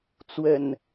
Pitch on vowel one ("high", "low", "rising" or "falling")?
low